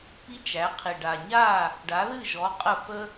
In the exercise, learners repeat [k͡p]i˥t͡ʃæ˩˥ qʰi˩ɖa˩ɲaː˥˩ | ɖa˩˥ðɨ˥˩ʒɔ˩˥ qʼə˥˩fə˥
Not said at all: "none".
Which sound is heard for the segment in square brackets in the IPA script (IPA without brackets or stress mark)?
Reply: p